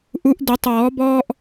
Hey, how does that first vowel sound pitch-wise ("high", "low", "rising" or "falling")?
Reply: rising